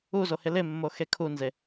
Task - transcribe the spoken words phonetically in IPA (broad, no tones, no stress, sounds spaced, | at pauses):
u z o h ɪ l ɪ mː o x e kʰ u n z e